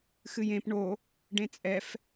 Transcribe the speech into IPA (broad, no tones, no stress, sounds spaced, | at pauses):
x ɨ j ẽ p ɳ o | ɖ ẽ t͡sʼ ɛ f